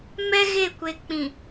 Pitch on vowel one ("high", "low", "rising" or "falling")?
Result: high